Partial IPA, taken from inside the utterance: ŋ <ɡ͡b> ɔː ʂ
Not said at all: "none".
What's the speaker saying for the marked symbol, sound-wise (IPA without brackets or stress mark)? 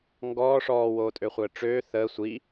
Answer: ɡ